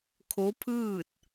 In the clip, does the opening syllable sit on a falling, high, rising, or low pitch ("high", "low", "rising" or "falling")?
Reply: rising